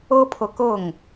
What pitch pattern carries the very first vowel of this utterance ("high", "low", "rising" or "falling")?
high